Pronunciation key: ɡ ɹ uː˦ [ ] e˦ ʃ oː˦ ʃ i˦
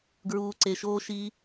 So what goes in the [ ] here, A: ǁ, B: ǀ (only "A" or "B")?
B